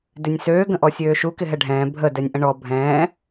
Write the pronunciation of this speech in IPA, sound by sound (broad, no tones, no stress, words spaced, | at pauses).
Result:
dʏnʲsøː ɡə̃ʔɔsʲøːʃu kɪɦɛɖʱɛ̃ː bʱə dɛnʲʔə̃ɳɔ bʱɛ̃ː